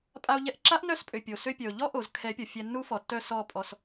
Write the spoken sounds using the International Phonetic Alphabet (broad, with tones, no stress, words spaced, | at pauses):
pʼa˧o̯ʎɛ˧ʔǁa˦ʔ nœ˦s pʼø˨ pʲo˨sø˧pʲœ˨o̯ ʎɔ˦ʔo˨zkʰɛ˨˦ pʲɔ˨ fʲɛ˧nːu˦fɔ˨tːœ˦˨ sɔ˦˨ pʼɔ˧s